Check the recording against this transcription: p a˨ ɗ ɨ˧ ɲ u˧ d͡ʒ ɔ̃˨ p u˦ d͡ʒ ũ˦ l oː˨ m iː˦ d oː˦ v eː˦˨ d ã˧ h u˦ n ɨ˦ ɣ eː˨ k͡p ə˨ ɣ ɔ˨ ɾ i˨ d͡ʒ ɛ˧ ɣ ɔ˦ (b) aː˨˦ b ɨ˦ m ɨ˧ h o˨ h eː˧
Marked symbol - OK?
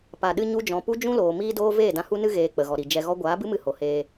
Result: no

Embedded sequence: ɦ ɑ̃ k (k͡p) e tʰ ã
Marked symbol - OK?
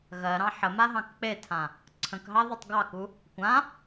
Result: yes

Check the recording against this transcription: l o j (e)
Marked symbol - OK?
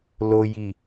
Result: no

